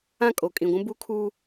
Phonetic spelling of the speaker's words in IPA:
ã˦˨kʼo˨ kʼĩ˨ɡʷũ˦ bu˦kʰuː˦

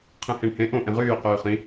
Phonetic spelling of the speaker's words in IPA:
qʰẽhẽɳhẽ ʔõ ʔẽʁyː qyːχĩ

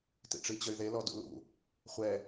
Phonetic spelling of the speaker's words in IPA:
tḭʈ͡ʂit͡ɕəy̯ðe lɔdṵlṵ | χʷɛ

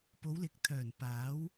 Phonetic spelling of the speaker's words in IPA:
po˨˧wlɪ˨k̚t̪ʰœː˨˩n paː˨˥w

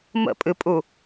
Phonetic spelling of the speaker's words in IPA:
mə̰pʼɨpʼu

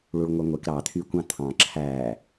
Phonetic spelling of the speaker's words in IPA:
ɭuɭŋʷœŋʷek ɾɑ t̪ʰykʷɑ̃t̪ʰɑ̃ ǁʰæ

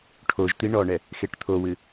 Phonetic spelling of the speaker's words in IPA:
ʈʰoʒt̪i ɳɔɳɛ | xeʈt̪ʰowɨ

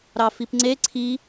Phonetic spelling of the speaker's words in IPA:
ɾɑfipŋ͡ǀe ǀʰi

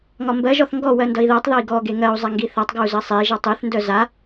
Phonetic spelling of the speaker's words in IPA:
ŋɒmbɜʒɔθ ŋɡɔ wɜndʌi̯ðɜtˤðɒi̯ ɡɔɡe ŋɜu̯ zˤaŋɡiθatˤɡɔu̯ zɜsˤei̯ʒʌ tˤeθndœ za

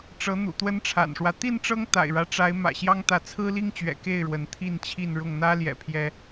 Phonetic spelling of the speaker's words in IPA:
ʈ͡ʂɤ˨˦ n̪ṵ˨˩t̪wə˦nʈ͡ʂʰa̰˨˩nʂwä˦ t̪i˥˨nʈ͡ʂɤ˦ŋ t̪a̰˨˩ɪ̯ɻä˦ʈ͡ʂa˨˦ɪ̯ mä̰˨˩ɕjɑ˦ŋt̪ä˨˦ t͡sʰɹ̩˦li˦ŋt͡ɕɥɛ̰˨˩ ke˥˨ɪ̯ɻwə˨˦n t̪ʰi˥˨nt͡ɕʰi˥˨nɻʊ˥˨ŋ n̪ä˦ljɛ̰˨˩ pʰjɛ˦

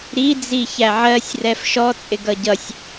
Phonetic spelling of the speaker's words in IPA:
ɾi d͡ziçæʕɜsʲ rɛfʃɔ t͡sʼɪɡʌɟʌsʲ

